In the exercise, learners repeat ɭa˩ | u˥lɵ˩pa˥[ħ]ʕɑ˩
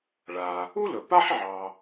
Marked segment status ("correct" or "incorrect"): correct